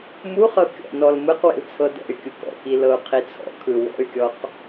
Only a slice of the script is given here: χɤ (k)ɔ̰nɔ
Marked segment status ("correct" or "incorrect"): incorrect